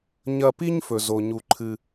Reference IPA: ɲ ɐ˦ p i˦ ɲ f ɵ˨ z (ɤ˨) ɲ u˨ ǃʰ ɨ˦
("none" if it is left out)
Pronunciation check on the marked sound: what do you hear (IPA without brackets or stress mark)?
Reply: o˨